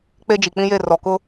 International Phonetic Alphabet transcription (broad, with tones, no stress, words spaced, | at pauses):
k͡pe˦d͡ʒi˨k͡pĩ˦je˦˨ rɔ˨kʊ˦